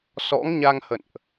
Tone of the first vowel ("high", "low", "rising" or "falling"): rising